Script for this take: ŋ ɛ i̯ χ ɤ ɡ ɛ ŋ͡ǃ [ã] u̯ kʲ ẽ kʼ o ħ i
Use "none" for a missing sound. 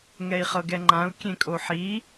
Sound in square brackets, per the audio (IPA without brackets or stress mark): ã